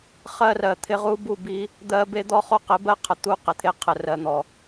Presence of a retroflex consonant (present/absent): absent